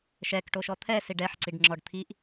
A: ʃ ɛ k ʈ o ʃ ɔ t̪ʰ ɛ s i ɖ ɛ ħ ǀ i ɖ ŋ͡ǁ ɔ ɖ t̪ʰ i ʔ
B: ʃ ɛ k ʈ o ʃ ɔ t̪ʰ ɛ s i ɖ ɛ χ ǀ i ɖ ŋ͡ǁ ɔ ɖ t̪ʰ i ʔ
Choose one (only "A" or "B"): A